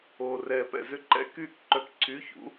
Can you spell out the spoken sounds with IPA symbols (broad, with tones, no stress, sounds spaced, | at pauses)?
oː˨ r ɛː˨ p ɛ̰˨ z ʏ˥˧ ǃ ɛ̰˧˥ k yː˥˩ k ǃ œ˧˥ k ǀʰ yː˧˥˧ ç ṵ˩˥